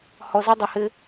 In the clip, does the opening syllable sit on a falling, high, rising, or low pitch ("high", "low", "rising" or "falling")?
low